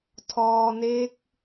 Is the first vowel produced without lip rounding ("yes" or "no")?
no